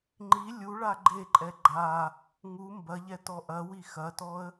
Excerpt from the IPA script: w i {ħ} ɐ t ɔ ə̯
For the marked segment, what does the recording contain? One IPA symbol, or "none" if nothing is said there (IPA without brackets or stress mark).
x